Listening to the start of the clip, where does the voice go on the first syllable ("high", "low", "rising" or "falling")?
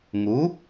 rising